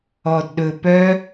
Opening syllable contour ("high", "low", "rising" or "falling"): low